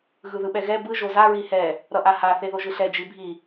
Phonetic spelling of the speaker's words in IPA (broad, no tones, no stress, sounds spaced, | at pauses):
ɣ ɯ ð ɯ ɓ ɛ ɣ ɛ b ɯ ʒ o z a ɹ i h ɛ | ɾ ʌ ʔ a h a θ e ð o ʒ ɯ ɬ ɛ d͡ʒ i bʱ i